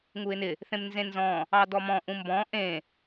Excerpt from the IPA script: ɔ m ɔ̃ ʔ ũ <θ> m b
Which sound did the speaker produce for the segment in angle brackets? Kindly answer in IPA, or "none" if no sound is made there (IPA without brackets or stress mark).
none